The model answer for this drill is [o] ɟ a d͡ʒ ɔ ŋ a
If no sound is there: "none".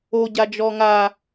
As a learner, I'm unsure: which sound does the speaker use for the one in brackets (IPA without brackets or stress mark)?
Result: o